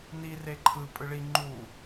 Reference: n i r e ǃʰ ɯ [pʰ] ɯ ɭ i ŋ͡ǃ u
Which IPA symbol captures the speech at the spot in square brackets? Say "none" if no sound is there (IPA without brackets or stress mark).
pʼ